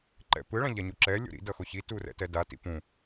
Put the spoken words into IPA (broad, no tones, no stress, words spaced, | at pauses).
ǃɛ̰pɯ ɭãʎaɲuǁɛ lʲo̰ɾḭ dʌxoçi turɛ̰tɛda tḭpũ